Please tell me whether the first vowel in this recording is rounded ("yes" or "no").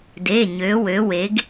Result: no